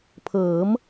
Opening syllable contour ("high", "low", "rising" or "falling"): rising